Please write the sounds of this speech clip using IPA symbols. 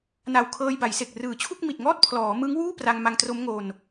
na˨˩wkʰɤː˧jba˩˦j se˨˩k̚rɯː˨˩t͡ɕʰu˥˩k̚ mi˨˩t̚ŋɔː˥˩t̚ pʰlɔː˩˦ mɯ˦˥ŋwuː˥˩ pra˧ŋma˧ŋtro˦˥mŋo˧n

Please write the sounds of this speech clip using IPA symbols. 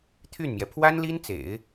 t̪ʰy˥˩nmjɛ˩ pʰwa˥nli˥nt͡sḛ˨˩˦ɪ̯

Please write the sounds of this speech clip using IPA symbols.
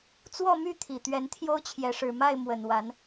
t͡swɔ˥˨my˥˨ t̪ʰi˨˩t̪ɥɛ˨˦n t̪ʰjo˦ʊ̯t͡ɕʰjɛ˨˦ʂɻ̩˨˩ ma˥˨ɪ̯ mwə˨˩nwa˨˦n

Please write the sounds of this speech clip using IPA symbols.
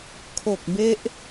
kʰo˨˩k̚be˦˥ʔ

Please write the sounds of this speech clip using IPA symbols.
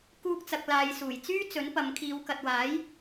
kuː˧k̚t͡sɐ˨k̚ laː˨jsuː˨˩j t͡syː˥t͡sɵ˨˥npɐ˨˧m kʰiː˨˧wkɐ˨t̚waː˨˥j

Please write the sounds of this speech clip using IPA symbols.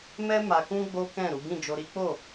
mɛ˦ma˧ kũ˦ɡ͡bo˦kɛ̃˦˨ ɾu˨˦ɡĩ˦˨d͡ʒo˧ ɾi˦k͡po˦˨

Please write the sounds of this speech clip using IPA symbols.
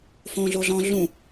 fõɮoɮɔ̃ ɮũ

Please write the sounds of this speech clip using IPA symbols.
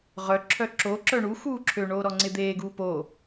ʁœ ǁʰœǁo ǁœɳu xuːǁʰø ɳoːɾɔŋ͡ǀɪd̪eː ɡuːpo

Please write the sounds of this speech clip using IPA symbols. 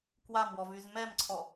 kwamwɔvyz mɛmǀʰɔ

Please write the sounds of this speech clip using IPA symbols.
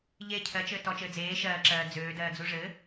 ʎe cʰɜt͡ʃɘː tɔt͡ʃɘː d͡zeː ʃɜːǁɜː d͡zøːdɜːd͡zu ʐɘ

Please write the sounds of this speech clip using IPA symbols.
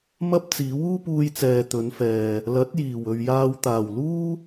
mɐ˥p̚t͡siː˨˥w uː˥puː˧jt͡sɛː˨ t̪ɵ˨˧nfɛː˨ | lɐ˨˥t̚jiː˨˩wɵ˨ɥjaː˧w t̪aː˨˩wluː˥

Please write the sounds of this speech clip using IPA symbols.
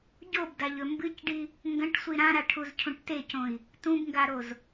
ɟobdaʎɵ mbɨcɖi | ŋɡɐ̃ʈsʷi ɾãɾaʈʰuzcʰũʈ tecõi̯ | tũbŋɡaɾoz

